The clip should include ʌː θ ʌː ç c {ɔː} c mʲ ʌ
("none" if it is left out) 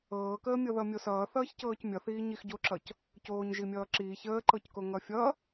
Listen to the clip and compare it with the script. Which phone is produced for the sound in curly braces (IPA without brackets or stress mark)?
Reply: ɤː